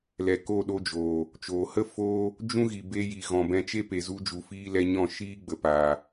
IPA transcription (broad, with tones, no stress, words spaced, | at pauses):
lɛ˨ko˦˨ɗo˧d͡ʒoː˨ | t͡ʃoː˨hə˦ foː˦ | d͡ʒũ˦ɣi˨be˧ji˨ ɣɔ̃˨bɛ̃˧t͡ʃe˦ pe˨zu˧d͡ʒu˨ fiː˧ lɛ˧ɲɔ̃˦˨ʃiː˦ ɡ͡bə˨paː˨